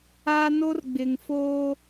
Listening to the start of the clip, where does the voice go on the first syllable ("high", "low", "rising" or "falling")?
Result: high